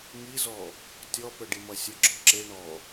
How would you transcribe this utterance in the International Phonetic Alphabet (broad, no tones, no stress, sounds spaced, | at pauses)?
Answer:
ŋ i z ɔ | tʲ ɔ p ə ɖ i m ʌ sʲ ə ɡ͡ǁ ɔ ǁ e ɳ ɔ